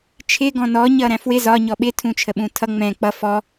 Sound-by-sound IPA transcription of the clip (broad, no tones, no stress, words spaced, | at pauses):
t͡ʃʰɪ ɡɔ̃nɔ ɲʌɾæ̃fwɪ zɒ ɲɔɓɪ tʰũt͡ʃʰəɓũtʰʌ ŋ͡mɛ̃ k͡pʌ fɔ